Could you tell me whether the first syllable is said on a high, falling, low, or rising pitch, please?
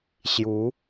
rising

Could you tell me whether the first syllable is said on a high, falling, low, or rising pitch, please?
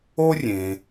high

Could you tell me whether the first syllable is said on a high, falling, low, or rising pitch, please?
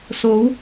rising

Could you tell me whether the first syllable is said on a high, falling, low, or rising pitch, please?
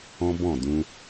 high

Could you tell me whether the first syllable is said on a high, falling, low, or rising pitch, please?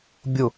low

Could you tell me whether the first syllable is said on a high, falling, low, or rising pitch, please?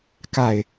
falling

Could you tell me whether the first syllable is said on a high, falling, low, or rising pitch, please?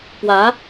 rising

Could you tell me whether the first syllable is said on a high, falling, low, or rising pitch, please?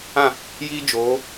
falling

